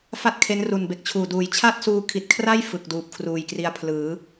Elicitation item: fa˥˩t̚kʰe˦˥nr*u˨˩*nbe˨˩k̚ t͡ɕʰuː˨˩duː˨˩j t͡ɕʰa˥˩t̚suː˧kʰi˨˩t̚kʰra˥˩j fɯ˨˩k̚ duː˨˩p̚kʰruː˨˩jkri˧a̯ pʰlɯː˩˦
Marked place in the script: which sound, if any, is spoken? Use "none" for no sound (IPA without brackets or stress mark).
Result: u˨˩